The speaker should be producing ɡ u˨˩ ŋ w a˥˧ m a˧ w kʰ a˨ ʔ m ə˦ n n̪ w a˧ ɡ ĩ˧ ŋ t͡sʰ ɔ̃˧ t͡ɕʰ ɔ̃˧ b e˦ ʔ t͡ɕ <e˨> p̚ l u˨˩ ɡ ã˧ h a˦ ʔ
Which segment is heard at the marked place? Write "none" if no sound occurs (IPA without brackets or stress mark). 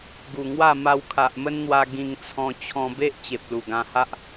e˨